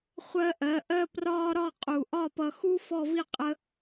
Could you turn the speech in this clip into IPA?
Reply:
χʷɜ˧ ʔɜ˩˧ʔɜ˥prɒː˥ ɾɒ˥˧qʼu˧˩ ʔɒ˥˧pʌ˧ xu˥ fɔ˥˧vi˥qʼə˥

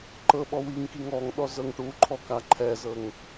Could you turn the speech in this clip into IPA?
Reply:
ǃɤɓɔ wiŋkiŋ ɔŋɗɔ zɤŋʈuǃʰɔ kaǃʰɛzɤŋ

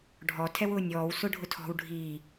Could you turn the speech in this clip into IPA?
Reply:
ɖʱɔ tʰɛwʊːnʲɔːw sʊɖʱʊtʰɔ̤w ɖʱi

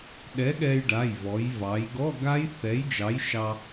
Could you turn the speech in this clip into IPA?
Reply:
ɗɛ˨˥ ɠɛ˧jɖa˩˧˩jvɔ˩˧j vɑ˩˧jɡɔ˧˥˧ɡa˦˥j θɛ˨˥jd͡ʒɑ˨˥jʃɑ˧

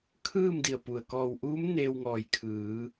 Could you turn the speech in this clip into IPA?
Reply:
kʰɯː˥˨m di˧˩ə̯pu˩ə̯ kɔː˧˩wʔuː˧˥m neː˧wŋɔː˧˩jkʰɯː˩˧

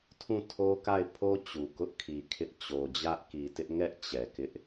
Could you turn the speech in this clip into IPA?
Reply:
tʰũ˦˨tʰo˦ka˦˨ɪ̯pʰo˦ t͡ɕu˨kʊ˦ʔkʰi˨ kʰɪ˦ʔ t͡ɕo˨d͡ʑä˦ʔki˨tɪ˦ʔ ŋɛ˦ʔ t͡ɕɛ˨kɪ˦ʔ

